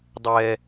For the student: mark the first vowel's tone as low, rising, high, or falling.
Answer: high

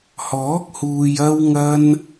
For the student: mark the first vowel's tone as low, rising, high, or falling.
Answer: rising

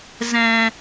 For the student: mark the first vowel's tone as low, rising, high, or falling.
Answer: low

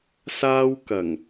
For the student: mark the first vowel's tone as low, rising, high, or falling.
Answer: high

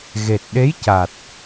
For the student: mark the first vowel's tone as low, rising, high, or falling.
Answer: low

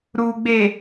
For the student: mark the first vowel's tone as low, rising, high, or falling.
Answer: low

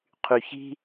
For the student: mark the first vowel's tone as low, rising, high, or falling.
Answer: low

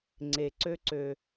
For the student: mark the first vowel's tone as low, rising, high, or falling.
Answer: low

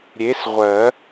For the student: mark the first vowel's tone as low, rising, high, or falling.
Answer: rising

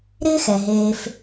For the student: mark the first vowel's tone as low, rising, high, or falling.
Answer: high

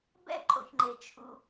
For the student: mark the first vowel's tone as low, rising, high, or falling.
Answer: falling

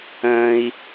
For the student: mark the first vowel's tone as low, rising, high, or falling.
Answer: high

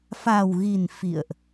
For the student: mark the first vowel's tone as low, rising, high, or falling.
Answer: low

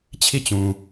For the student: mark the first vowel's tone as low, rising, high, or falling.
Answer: falling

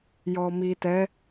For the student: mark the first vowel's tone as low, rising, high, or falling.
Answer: low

